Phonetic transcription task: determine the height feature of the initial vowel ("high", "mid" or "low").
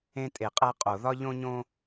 mid